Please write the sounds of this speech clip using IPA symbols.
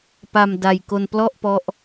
p a˧ m d a˧ j k o˧ n p l ɔ˥˩ ʔ p ɔ˦˥ ʔ

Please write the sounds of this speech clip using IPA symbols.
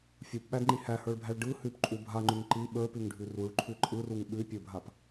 fʲ u p ɓ æ d ŋ͡ǃ i h æ h ə˞ ɭ bʱ æ ɭ ɖ ɯ h ʉ p ǃʼ u bʱ a ŋ͡ǃ ʉ ŋ ǃ i ɓ ə˞ p ʉ ŋ ɖʱ ʉ r u ɭ ǃʰ ʉ ǃʼ ɯ r u ŋ ɓ ʉ pʲ ə˞ bʱ a p

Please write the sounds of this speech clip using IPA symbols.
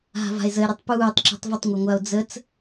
ɦ a̤ v a̤ e̯ z ə e̯ ɾ ɯ tˤ p uː tˤ ǁ ṳ tˤ v ə tˤ ŋʷ a ŋʷ a o̯ d͡z ə t͡s

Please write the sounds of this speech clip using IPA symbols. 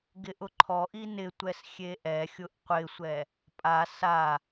ɡ ɪ ʔ ʊ ǃʰ ɔ ʔ i n ɪ tʷ ɛ s xʲ e ʔ ɛ xʲ ʊ ʔ qʷ ɪ sʷ ɛ | pʼ a s a

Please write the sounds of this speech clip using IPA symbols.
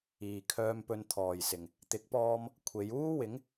iː˨ kʰ œː˧ m p ɵ˧ n t̪ʰ ɔː˨ j s ɪ˨ ŋ | t̪ ɪ˨˥ k̚ p ɔː˧ m | kʷʰ e˨˧ j uː˥ w ɪ˨˥ ŋ

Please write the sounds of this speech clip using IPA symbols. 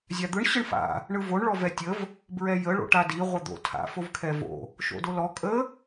zʲ a d̪ ɯ ɳ ɕ ɯ ɳ f a̰ | ɳ ɯ v o ɳ ɭ ɔ v ɛ tʲ ə v | b ɹ ɛ j ə ɭ o̰ ʈ a d i ʁʷ ɘ d̪ o̰ tʰ a̰ f o v kʰ ɛ v o̰ | ʃ o̰ d o l ɔ kʼ ə

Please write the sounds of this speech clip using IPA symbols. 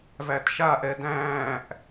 v æ t ʃ a ʔ ɛ d æ̃ː ʔ

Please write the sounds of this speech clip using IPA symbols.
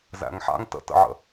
z æ̰ ŋ ħ a̰ ŋ t ə̰ t ə̰ ʕ ə̰

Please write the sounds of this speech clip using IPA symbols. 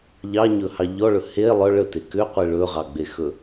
ʎ ɑ ɲ ɵ h ɑ ʎ ɔ ɭ ɵ h e lˠ œ ɭ ə t e k ʏ qʷ i ɭ ɵ ʁ ɑ ɡ͡b e x ɵ

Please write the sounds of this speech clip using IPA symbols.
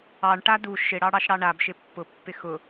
ɑ ɳ ʈ a d u ʃ ɪ ɽ ɑ ɽ ɑ ʃ ɽ ɑ ɳ a b ʃ ɪ pː ʊ pː ɪ x ʊ

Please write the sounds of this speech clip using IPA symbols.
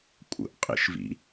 kʷʼ ə̰ ʔ qʼ ḭ ʃ v ḭ

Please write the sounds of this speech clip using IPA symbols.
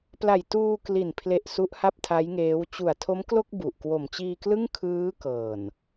p l a˨˩ j t uː˧ k l i˨˩ n pʰ l e˨˩ ʔ s u˦˥ ʔ h a˥˩ p̚ tʰ a˦˥ j ŋ eː˦˥ w t͡ɕ u˨˩ a̯ tʰ o˦˥ m k l o˥˩ k̚ b u˨˩ ʔ k w o˨˩ m t͡ɕ iː˧ k l ɯ˥˩ ŋ kʰ ɯː˦˥ k ɤː˨˩ n

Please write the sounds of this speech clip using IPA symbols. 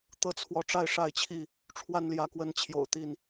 t̪ ɤ˥˨ t͡sʰ w ɔ˨˦ ʈ͡ʂ a˥˨ ɪ̯ ʂ a˥˨ ɪ̯ t͡ɕʰ i˥˨ | ʈ͡ʂʰ w a˥˨ n l j ä˨˦ k w ə˨˦ n t͡ɕʰ j o̰˨˩ ʊ̯ t̪ i˥˨ n

